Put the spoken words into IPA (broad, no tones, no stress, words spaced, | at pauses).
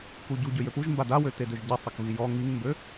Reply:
kuɟu ɟøjøpuʒ mbadawø tedøʒɟi sˤəkβijɔ ŋiŋmbø